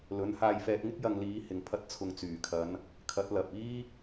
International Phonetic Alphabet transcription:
l ɵ˨˥ n h aː˧ j f ɛː˧ t̚ ŋ ɪ˥ k̚ j ɐ˧ ŋ l iː˨˧ h ɪ˨ ŋ pʰ ɐ˧ t̚ t͡sʰ ʊ˨ ŋ t͡s yː˨˩ kʰ ɐ˨˧ n | kʰ ɐ˨˥ t̚ l ɐ˨ p̚ iː˥

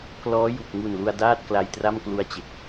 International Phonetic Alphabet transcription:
k l ɔː˦˥ j u˨˩ k̚ ŋ u˨˩ n l u˧ a̯ d aː˥˩ t̚ k l a˧ j t r a˥˩ m k l u˧ a̯ t͡ɕ e˨˩ k̚

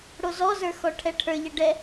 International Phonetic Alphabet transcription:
ɽ o z ɔ z ə˞ x ɔ ʈʰ ɛ ʈʰ ə˞ ʎ ɛ ɖ ɛ

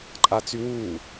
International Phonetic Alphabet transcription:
ǃʼ a t͡s y w uː

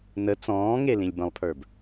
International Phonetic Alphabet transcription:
n ə t͡s ɔ̃ː ŋ e l ĩ lʲ b ə̃ lˠ pʰ ə˞ b

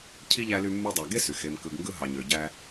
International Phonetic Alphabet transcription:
cʰ i˥ ʎ æ˦ l y˦ mː u˦ dˤ æ˨ ɡ e˥ s y˩ x e˨ m k ɯ˨ ɡ ŋ ɡ ɯ˦ ɦ ɑ˨ ɲ ø˨ ɟ æ˦

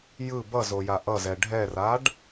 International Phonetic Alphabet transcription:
j ɯ b ʌ z o j a ʔ ʌ z ɛ ɖʱ ɛ r a ɖ

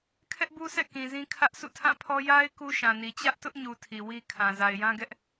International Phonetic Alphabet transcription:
kʰ ɛ˦ ʔ b u˦ s ɛ̰˦˨ k ĩ˨ z ĩ˦ kʰ ä˦ ʔ sʰ ṵ˦˨ tʰ ã˦˨ pʰ ɔ˦ j a˦ ɪ̯ k u˦ ʃ ã˨ n i˨ t͡ɕ ä˦ ʔ t ʊ˦ ʔ ɲ u˨ tʰ i˨ w i˦ kʰ ã˨ z a˨ ɪ̯ j ã˦ ɡ ɛ˦ ʔ

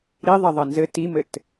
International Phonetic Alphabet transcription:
ɾ i ðˤ ɐ ðˤ ɐ n z ɘ t i m ɘ t

